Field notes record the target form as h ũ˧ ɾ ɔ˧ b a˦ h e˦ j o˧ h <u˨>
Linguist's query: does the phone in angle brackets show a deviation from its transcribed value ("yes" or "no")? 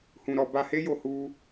yes